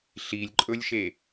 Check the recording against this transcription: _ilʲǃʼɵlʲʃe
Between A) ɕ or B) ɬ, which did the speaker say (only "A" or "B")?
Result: B